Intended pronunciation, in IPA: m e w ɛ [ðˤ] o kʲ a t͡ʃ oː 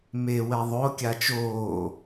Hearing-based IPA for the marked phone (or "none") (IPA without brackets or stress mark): ðˤ